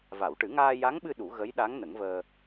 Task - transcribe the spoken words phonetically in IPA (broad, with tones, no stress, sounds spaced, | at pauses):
v a˨˩˨ w ʈ ɨ˨˩˦ ŋ aː˧ j a˧˥ ŋ ɓ ɨ˧ ɗ u˨˩˦ ɣ ə˧˥ j ɗ a˧˥ ŋ n ə˨˩˦ ŋ v əː˧